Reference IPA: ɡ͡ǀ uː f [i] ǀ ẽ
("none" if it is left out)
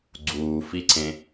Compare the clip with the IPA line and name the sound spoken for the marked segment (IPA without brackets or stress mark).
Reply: i